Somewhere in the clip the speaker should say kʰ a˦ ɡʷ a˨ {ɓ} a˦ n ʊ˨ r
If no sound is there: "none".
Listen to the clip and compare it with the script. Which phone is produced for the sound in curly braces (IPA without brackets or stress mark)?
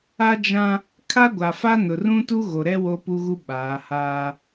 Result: f